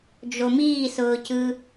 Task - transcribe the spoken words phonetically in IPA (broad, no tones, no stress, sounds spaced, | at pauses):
d͡ʒ o m iː s ʊː c ɯ